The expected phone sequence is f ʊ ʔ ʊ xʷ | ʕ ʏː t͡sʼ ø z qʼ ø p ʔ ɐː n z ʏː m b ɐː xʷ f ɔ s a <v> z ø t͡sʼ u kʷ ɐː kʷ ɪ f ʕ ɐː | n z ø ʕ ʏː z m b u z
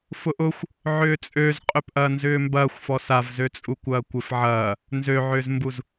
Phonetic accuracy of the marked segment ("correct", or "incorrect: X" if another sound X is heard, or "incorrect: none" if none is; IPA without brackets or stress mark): correct